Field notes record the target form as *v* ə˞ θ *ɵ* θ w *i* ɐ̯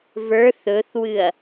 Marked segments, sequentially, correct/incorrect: correct, correct, incorrect: ɨ

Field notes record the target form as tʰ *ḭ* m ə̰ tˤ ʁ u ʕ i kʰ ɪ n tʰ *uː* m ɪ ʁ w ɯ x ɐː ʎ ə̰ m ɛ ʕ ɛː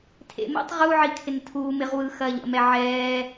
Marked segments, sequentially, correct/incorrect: incorrect: ḛ, correct

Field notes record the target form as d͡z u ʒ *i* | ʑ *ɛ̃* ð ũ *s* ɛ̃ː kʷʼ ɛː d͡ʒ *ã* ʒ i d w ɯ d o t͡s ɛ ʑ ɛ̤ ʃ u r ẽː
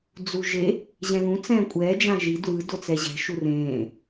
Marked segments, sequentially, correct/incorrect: incorrect: e, correct, incorrect: t͡s, correct

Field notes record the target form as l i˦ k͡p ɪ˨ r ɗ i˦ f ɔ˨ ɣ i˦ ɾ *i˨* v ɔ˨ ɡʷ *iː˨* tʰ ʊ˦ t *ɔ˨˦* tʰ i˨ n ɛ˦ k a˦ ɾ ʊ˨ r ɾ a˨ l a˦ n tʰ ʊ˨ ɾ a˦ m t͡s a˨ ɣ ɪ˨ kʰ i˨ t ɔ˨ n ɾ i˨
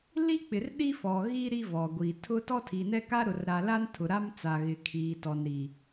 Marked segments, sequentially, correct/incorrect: incorrect: i˦, incorrect: i˨, incorrect: ɔ˦

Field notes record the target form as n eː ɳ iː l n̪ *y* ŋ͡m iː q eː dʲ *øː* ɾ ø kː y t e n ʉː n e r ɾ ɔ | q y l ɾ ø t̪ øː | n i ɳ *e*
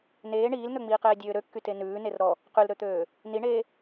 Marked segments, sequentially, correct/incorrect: incorrect: ø, correct, incorrect: eː

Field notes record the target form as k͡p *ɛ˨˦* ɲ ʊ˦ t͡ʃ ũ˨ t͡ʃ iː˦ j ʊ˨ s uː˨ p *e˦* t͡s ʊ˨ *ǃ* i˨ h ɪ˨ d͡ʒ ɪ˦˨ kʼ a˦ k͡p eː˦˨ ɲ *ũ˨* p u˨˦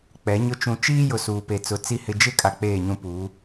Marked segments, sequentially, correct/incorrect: correct, incorrect: e˨, incorrect: t͡s, incorrect: ũ˦

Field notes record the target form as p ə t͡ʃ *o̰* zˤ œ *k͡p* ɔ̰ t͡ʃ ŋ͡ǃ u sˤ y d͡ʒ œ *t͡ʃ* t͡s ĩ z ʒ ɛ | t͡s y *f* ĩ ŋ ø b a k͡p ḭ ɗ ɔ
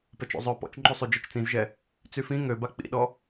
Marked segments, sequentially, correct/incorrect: correct, incorrect: p, correct, correct

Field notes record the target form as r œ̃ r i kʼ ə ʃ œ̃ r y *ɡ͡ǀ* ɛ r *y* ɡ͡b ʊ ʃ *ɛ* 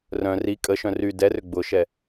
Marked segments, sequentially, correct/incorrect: incorrect: d, incorrect: ʏ, correct

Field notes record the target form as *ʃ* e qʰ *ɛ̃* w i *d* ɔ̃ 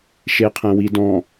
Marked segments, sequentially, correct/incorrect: correct, correct, correct

